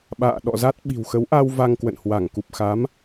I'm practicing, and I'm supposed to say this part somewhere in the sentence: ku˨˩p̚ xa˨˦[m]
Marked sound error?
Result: no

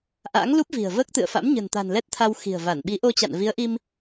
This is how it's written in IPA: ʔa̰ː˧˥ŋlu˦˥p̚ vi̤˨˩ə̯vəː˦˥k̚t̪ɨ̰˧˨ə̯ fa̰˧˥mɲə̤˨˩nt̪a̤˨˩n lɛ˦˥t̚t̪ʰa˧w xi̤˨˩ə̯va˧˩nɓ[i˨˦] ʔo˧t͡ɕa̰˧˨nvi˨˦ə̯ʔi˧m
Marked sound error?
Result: no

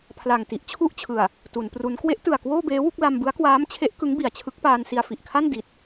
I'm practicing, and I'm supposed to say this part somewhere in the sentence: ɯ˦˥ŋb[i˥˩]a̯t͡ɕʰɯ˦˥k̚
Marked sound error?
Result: yes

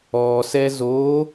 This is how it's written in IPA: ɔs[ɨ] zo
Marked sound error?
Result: yes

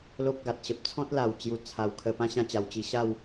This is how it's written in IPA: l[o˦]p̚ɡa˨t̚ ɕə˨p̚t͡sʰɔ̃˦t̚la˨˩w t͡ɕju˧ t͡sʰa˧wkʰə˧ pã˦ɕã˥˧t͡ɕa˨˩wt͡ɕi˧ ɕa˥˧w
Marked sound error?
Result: no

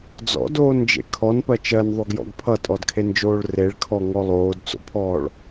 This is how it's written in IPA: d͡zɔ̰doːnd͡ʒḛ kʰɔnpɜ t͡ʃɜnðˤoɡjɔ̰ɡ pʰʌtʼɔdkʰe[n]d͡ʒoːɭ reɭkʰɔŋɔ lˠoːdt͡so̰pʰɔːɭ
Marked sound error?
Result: no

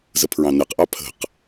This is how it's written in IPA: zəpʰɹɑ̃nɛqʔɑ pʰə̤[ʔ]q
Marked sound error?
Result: yes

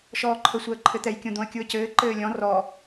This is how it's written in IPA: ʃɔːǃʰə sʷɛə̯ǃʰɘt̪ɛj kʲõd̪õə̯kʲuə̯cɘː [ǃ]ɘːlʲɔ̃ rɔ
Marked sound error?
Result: no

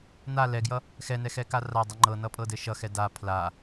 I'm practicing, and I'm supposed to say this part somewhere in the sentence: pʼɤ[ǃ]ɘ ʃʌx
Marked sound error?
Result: yes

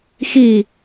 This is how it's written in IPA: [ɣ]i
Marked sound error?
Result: yes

